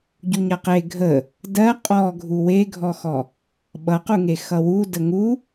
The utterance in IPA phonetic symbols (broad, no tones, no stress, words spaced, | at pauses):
ɟuɲʌqe ɡʱə | dɜ qʼɔɡʱu weɡʱɔxɔ | ɓʌquŋe xʌwu dəŋu